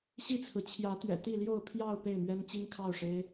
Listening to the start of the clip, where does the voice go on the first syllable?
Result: falling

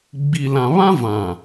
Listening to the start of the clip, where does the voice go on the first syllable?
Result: low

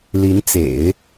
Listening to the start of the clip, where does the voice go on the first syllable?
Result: rising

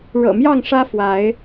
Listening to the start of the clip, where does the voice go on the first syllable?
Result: low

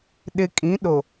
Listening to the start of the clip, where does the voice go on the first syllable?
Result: low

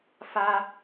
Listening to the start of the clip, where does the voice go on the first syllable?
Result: high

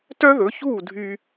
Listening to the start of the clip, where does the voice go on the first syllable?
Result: high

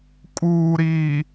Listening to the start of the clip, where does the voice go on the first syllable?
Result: low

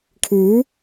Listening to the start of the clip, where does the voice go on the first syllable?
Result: rising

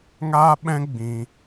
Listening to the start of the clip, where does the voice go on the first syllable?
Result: high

